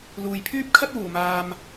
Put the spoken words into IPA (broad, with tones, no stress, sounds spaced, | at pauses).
l uː˨ j pʰ yː˥ p̚ kʰ ɐ˥ t̚ w uː˨˩ m aː˨ m